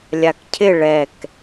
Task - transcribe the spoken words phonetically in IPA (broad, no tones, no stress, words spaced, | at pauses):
lʲakcʰɪ ɭɛk